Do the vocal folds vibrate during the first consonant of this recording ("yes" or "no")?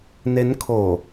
yes